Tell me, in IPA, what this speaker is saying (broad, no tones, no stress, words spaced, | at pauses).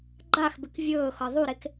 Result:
ɡ͡ǃaxbɪk vʲɵːxɤ ðˤuɾek